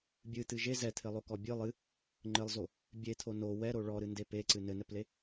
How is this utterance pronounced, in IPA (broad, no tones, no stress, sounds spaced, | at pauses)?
bʲ ɨ t̪ ɨ ʒ e z ɛ t̪ʰ ɘ lˠ o k ɔ bʲ ɨ lˠ ɨ | ŋ͡ǃ ɘ lˠ z o | bʲ e t̪ʰ o n o w ɛ ɾ o ɭ ɔ ɾ ɨ n d e p e ǀ ɨ n ɘ n ɛ p l e